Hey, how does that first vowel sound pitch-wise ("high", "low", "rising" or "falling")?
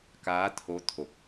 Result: rising